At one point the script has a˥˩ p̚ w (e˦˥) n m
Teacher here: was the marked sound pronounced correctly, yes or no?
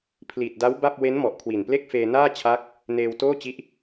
yes